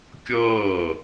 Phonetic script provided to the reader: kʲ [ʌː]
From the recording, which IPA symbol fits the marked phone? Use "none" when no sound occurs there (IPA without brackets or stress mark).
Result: ʌː